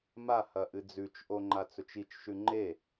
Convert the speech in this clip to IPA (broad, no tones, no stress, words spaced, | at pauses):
mahɐ ʔɨd͡zʉt͡ʃʔo ŋ͡ǃat͡sɵt͡ʃit͡ʃʃʉ ŋ͡ǃe